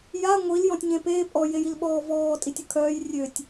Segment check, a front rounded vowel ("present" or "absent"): present